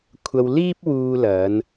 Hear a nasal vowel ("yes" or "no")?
no